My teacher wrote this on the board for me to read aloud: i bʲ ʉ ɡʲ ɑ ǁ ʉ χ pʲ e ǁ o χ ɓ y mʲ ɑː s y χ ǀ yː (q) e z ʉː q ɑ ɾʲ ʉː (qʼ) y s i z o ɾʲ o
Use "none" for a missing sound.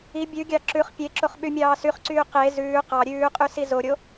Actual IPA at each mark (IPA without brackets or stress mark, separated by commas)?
q, qʼ